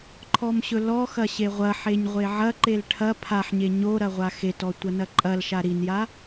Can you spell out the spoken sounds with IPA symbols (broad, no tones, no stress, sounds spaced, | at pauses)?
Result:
ǃʰ ɔ m ɕ ɵ l ɔ x ɐ ɕ e ʁʷ ɐ ħ e ɲ ʁʷ e ʕ ɐ ǃ e l ʈʰ ɐ pʰ a ħ ɲ e ɲ o ɾ ɐ ʁʷ a x e t ɔ tʷ ɐ n ɐ ǃʼ ɐ l ʃ a ɾ i n j a